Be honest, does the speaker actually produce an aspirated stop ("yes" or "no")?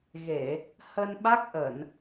no